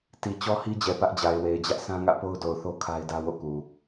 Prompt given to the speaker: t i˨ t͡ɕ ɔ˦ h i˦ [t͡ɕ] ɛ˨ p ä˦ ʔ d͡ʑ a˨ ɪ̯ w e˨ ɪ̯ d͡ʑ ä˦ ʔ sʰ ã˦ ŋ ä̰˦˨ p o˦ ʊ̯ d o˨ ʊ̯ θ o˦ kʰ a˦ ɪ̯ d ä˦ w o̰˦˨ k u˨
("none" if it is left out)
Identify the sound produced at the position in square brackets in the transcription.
d͡ʑ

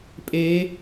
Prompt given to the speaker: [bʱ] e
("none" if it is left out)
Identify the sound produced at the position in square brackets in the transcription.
pʼ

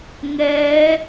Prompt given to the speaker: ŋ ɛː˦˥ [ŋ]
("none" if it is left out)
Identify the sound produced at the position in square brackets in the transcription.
none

